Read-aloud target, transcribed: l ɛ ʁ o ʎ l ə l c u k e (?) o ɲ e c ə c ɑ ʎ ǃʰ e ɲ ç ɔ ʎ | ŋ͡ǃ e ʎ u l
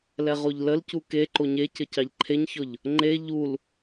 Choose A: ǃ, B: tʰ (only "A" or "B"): A